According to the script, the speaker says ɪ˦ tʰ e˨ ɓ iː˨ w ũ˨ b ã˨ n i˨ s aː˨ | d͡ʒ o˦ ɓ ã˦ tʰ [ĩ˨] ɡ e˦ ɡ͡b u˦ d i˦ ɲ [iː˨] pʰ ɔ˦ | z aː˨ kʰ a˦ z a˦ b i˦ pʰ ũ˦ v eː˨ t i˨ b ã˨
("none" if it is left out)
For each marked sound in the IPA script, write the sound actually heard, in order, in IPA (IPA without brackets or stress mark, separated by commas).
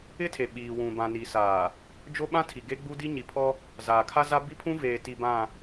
i˨, i˨